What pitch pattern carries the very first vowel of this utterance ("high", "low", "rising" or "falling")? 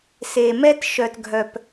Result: low